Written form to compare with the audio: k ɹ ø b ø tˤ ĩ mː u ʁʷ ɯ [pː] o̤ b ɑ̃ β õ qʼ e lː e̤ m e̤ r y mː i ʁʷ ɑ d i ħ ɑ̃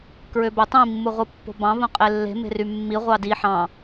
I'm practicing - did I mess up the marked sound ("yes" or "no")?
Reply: no